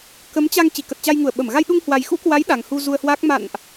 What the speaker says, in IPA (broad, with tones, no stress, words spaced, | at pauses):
kə˨˦m t͡ɕa˧ŋ t͡ɕi˧˩kə˨˩t̚t͡ɕa˧jŋu˧˩ə̯ ɓə˧˩m ɣa˧jɗu˧ŋhwa˨˩jxṵ˧˥ kwa˨˦j ɗa˨˩ŋhu˧zu˧ə̯hwaː˦˥k̚ ma̰˧˨nʔ